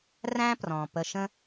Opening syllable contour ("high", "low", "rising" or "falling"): high